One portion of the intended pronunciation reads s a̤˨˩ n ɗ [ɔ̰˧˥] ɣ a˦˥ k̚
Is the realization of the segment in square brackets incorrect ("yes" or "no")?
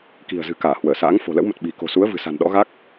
no